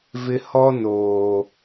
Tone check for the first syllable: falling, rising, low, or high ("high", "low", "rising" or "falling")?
high